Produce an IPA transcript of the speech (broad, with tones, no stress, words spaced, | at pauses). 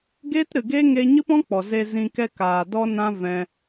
ɡeː˦tɾɨ˨ɡe˦ ŋe˧ ɲɨ˦pɔ̃˦k͡pɔ˨ ze˧ zĩ˧kɛ˦ kaː˨ dɔ˦ nã˦vɛ̃˧